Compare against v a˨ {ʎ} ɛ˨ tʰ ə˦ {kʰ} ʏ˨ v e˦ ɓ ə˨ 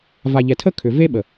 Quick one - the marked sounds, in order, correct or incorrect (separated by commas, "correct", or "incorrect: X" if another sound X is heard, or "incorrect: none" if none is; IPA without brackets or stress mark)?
correct, correct